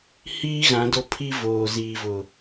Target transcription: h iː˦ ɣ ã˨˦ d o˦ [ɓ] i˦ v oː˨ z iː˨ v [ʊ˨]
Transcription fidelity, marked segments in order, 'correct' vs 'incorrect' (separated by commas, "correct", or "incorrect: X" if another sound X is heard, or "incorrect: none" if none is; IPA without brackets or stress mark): incorrect: pʰ, correct